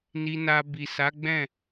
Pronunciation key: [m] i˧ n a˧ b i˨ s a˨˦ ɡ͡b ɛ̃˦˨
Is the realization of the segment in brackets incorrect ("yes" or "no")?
yes